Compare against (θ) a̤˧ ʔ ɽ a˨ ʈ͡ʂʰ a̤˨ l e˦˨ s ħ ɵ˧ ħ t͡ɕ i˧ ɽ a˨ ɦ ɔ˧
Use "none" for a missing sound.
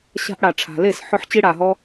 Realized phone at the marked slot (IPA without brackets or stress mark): ɕ